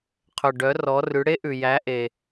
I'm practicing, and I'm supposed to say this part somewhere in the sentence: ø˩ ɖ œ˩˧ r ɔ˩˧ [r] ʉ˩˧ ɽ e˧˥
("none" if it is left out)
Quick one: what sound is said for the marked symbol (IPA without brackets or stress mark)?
r